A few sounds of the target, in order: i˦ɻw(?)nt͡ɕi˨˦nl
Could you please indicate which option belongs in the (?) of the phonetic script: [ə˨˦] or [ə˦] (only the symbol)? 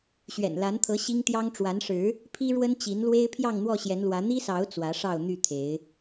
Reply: ə˦